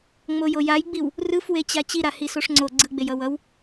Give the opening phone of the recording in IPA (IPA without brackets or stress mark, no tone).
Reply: ŋ͡m